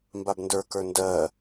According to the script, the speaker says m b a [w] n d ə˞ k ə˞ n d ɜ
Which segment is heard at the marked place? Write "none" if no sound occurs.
b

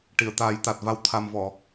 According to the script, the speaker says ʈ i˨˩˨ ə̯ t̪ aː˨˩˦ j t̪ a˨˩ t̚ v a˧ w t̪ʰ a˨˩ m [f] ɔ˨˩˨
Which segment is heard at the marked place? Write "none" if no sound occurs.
v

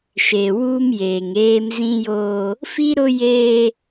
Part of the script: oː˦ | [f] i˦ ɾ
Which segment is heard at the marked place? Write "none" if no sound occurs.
f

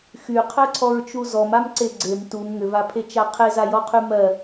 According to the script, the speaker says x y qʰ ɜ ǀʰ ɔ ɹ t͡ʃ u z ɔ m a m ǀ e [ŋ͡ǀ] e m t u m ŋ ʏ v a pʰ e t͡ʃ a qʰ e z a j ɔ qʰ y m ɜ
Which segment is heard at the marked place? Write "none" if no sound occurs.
ɡ͡ǀ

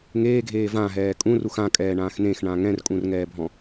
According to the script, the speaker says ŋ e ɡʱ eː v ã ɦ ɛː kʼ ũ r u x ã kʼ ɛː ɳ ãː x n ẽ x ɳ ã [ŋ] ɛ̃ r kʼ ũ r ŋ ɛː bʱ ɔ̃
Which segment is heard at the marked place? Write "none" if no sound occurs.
ŋ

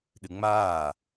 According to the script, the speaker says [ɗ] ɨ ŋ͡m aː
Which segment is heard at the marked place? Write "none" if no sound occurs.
ɗ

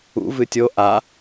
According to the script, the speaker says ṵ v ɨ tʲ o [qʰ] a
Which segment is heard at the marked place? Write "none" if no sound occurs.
ʔ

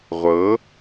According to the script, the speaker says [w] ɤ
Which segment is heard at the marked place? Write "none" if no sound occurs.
ʁʷ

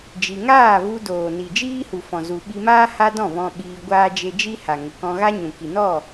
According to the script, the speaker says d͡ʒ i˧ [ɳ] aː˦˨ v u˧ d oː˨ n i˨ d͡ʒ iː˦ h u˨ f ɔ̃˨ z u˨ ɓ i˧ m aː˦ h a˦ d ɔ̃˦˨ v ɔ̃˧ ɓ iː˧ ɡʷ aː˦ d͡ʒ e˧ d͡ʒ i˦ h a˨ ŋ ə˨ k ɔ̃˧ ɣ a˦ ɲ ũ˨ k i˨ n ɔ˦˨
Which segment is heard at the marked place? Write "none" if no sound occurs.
ŋ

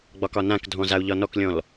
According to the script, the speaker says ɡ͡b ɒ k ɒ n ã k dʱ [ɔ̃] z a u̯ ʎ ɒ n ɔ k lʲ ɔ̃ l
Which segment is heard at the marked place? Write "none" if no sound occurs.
ɔ̃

